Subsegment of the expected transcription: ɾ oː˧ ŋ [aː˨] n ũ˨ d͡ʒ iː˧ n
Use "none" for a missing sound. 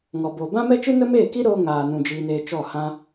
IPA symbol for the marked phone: aː˨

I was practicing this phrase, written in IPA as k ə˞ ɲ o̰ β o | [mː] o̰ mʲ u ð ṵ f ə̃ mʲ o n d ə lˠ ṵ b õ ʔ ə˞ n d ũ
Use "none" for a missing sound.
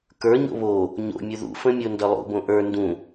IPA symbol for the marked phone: ɲ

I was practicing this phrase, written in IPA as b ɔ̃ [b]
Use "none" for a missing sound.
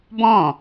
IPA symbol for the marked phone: none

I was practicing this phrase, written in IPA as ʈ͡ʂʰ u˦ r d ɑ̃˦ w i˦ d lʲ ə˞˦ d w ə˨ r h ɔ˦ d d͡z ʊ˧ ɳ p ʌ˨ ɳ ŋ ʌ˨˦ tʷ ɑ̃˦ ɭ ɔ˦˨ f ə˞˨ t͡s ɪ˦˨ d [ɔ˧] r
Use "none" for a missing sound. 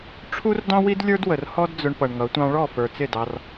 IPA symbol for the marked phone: ɑ˧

